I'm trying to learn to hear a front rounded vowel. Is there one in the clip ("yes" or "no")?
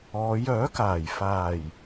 yes